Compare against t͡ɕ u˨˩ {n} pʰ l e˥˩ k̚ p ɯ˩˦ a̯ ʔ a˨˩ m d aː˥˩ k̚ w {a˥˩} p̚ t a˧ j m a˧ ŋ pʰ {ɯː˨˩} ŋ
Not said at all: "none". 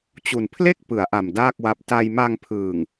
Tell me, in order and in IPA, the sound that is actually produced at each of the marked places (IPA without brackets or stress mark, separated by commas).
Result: n, a˦˥, ɯː˨˩